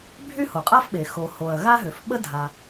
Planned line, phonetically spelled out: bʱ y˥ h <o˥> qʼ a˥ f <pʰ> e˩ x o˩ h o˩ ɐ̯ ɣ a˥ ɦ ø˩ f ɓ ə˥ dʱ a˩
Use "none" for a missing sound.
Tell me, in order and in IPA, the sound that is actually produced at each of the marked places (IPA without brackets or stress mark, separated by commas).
o˩, ɓ